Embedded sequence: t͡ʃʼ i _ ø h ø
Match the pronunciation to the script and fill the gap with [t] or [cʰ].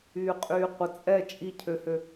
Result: cʰ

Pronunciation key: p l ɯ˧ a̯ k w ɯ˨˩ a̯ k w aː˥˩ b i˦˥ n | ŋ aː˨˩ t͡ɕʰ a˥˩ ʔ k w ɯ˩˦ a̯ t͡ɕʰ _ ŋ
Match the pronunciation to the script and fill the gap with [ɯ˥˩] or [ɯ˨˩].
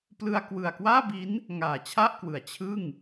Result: ɯ˥˩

